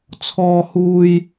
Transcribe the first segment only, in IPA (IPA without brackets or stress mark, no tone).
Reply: t͡sʰ